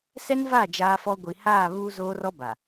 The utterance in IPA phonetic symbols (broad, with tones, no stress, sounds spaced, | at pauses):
s ɛ˦ n v a˦˨ d͡ʒ aː˦ f ɔ˦ ɡʷ i˨ h aː˦˨ β uː˦ z oː˦ r ɔ˦ b a˨